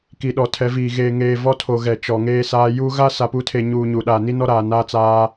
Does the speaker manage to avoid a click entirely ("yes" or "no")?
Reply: yes